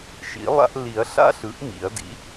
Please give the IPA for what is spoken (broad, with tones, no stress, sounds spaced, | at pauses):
ʃ ḭ˩˥ lˠ a̰˦ ʔ l i˨˩˦ ɐ̯ ɬ a̰˦ ɬ ɯ˩˥ ʔ m ḭ˨˩˦ ɐ̯ d ḭ˩˥